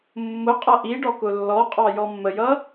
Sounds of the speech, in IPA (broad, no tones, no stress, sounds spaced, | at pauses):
mː ʊ qʼ ʌ ʔ i ɖ ɔ k ʊ lː ɔ qʼ ɑ j ɔ mː ə j ʌ